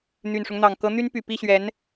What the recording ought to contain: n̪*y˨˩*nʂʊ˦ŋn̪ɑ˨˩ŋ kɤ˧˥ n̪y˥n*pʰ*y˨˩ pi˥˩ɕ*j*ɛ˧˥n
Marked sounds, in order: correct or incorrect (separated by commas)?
correct, incorrect, incorrect